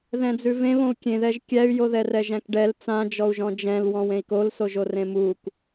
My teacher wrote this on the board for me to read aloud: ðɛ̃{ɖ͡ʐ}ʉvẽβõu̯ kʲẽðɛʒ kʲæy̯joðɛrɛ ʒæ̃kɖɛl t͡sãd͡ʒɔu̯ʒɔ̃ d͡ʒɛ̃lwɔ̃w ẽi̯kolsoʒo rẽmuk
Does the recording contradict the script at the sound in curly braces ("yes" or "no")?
yes